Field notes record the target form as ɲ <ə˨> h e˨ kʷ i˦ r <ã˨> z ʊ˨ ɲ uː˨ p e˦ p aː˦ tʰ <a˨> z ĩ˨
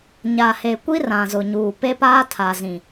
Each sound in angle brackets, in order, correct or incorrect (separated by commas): incorrect, correct, correct